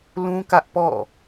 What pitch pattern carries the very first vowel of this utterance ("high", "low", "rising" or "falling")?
high